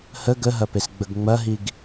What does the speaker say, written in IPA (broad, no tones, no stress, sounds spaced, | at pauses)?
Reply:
h ə ɡ ə ɦ ɐ p e s ɡ͡b ə ɡ ŋ͡m ɐ ɦ i ɡ